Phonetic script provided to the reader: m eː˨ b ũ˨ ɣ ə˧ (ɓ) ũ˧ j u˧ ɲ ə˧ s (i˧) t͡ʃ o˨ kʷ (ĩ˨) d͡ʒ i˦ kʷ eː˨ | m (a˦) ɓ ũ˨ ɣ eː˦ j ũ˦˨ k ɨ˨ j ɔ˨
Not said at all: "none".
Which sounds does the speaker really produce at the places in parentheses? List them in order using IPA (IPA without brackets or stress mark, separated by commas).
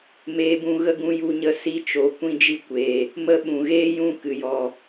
ɡ, i˧, ĩ˦, ə˦